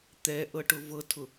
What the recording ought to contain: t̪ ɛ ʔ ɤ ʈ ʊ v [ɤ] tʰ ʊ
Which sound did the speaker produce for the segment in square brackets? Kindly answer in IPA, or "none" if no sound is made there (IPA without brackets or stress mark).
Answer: ɤ